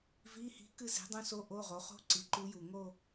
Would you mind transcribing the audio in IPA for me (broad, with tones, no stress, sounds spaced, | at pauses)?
v i˧˥˧ h i̤˧˥ k ɨ˥˧ z i̤˩˥ dˤ ũ˧˥ s o˧˥ ʔ o˧˥˧ ʁ o˩˥ χ o̤˥ ǀ i˩˥ ǃ u˧˥ j u˨˩ ŋ o˥˧